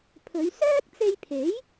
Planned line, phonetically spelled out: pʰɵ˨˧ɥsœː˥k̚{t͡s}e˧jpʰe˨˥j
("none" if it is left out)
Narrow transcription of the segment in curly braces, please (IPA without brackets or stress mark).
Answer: t͡s